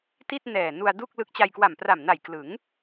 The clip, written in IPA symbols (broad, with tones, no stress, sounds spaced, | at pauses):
t i˥˩ t̚ n ɛː˨˩ n u˧ a̯ d u˥˩ k̚ l ɯ˦˥ k̚ t͡ɕ a˧ j k w a˨˩ m p r a˨˩ m n a˨˩ j k l ɯ˩˦ ŋ